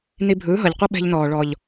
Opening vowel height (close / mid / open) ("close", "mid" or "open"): close